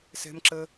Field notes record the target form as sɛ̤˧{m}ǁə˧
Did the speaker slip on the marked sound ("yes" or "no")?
no